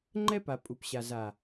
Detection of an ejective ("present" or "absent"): present